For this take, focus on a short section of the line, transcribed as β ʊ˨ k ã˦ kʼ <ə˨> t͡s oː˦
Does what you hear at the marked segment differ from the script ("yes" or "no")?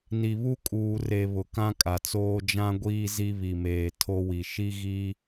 yes